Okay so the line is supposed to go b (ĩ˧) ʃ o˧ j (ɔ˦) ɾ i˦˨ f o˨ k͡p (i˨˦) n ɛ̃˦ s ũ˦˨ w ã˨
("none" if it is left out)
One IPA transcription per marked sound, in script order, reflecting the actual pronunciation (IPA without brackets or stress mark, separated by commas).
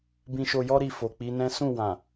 ĩ˧, ɔ˦, i˨˦